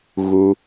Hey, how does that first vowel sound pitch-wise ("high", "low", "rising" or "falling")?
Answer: low